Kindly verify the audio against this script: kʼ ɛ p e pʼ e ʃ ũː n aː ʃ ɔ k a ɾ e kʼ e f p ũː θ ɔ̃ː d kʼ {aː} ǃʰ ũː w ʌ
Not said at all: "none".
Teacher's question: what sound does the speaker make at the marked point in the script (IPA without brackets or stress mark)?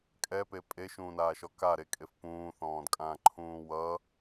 ãː